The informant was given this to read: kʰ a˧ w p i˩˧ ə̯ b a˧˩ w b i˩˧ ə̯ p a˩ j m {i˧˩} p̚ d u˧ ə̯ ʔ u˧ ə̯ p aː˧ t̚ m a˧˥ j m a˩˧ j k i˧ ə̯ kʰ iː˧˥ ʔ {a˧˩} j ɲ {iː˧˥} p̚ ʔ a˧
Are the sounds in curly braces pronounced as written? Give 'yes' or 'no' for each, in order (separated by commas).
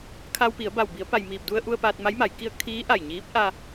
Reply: no, yes, yes